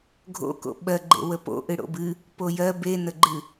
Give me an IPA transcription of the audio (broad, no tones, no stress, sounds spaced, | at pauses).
ɡʱ o̰ k o̰ ɓ ɜ ɡ͡ǃ ḛ w ə p o̰ ʔ ɨ ɽ o̰ b ɨ | p o j ɜ b e n ə ɡ͡ǃ ɨ